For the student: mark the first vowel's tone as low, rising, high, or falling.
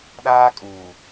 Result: high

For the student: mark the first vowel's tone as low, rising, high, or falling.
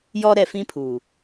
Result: high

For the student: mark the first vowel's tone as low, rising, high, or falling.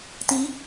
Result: rising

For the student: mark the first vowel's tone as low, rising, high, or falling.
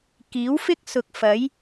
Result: rising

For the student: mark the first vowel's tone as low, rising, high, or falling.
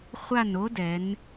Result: falling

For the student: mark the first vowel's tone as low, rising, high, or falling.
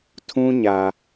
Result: high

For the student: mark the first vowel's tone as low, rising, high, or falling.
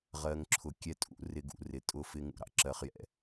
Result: low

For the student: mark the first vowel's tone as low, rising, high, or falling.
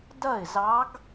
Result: falling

